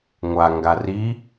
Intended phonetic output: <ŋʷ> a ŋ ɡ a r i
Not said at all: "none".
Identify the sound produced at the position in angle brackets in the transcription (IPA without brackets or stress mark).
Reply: ŋʷ